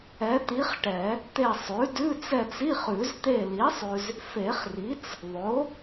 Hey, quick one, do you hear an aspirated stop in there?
no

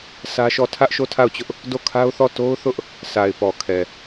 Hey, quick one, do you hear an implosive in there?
no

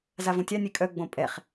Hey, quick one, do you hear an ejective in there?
yes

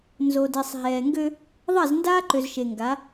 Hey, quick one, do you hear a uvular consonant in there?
no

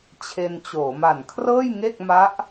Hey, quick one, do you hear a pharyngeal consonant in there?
no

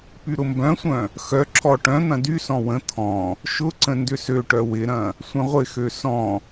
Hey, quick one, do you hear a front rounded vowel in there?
yes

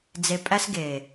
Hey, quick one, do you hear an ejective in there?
yes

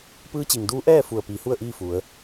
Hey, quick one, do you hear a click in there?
no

